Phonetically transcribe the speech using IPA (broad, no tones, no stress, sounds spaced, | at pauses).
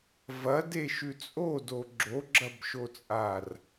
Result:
v ɐ d e ʃ ʉ t͡sʼ o d o ɡ͡ǁ o ɡ͡ǁ ɐ b ʃ o t͡sʼ a r